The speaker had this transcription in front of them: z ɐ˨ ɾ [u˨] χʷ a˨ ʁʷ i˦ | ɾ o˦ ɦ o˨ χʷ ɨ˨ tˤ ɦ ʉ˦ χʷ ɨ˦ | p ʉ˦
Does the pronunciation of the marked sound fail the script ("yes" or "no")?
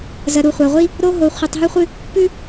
no